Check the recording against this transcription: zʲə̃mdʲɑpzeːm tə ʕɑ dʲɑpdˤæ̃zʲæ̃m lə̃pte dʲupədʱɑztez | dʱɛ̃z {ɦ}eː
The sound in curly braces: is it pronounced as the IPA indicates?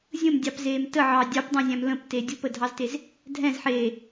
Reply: no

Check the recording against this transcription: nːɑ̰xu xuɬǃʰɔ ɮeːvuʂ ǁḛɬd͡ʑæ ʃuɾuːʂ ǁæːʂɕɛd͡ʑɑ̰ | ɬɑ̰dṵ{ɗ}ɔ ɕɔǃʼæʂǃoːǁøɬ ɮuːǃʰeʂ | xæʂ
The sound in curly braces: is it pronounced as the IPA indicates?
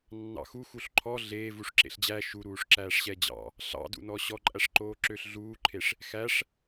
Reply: no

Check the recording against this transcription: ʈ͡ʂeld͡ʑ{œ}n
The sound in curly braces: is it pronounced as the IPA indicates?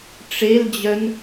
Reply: yes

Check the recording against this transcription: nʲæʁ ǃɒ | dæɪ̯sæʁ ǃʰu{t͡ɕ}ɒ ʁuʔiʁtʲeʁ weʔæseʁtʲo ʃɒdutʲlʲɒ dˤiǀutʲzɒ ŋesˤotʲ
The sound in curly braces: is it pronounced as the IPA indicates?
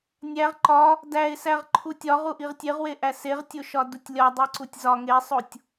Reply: no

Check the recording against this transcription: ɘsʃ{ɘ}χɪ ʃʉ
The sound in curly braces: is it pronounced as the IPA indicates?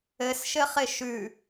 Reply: yes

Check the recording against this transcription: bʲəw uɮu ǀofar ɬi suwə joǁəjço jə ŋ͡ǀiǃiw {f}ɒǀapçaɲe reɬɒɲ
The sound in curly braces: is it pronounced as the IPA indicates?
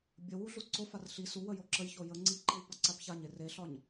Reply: no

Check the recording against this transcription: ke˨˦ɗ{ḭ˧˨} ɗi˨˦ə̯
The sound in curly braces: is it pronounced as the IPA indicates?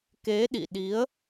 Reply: yes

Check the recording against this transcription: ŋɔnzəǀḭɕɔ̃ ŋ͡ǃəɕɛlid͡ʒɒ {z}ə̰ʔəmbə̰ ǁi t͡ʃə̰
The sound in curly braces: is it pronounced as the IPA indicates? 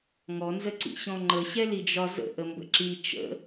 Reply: yes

